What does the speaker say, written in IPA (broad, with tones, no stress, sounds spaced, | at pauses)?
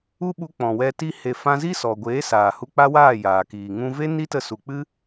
u˦ ɓ u˧ k͡p ɔ̃˨ w ɛ˧ t i˧ h e˨ f ã˧ z i˦ s ɔ˨ ɡʷ eː˨˦ s aː˨ h u˧ k͡p a˦ w aː˦˨ j aː˨ k iː˨ ŋ ũ˦ v e˦ n i˦ t ə˧ s u˨ k͡p ɨ˦